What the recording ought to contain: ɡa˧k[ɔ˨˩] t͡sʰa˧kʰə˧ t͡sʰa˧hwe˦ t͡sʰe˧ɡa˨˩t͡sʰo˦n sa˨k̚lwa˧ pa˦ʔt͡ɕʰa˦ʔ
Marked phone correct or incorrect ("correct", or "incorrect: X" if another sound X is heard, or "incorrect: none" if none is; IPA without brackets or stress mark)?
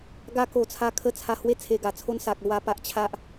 incorrect: o˨˩